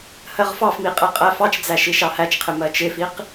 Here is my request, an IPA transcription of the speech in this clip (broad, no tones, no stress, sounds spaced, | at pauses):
h ɜ ʁ f ɑ f m i qʼ ɛ qʼ æ f ɑ t͡ʃ d͡z æ ʃ i ʃ ɑ h æ t͡ʃ qʰ ɪ m ɜ t͡ʃ ɪ f i q